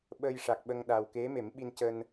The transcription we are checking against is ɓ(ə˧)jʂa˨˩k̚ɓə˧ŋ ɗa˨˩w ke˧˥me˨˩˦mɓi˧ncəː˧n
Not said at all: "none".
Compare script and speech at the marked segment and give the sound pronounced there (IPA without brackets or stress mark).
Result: ə˧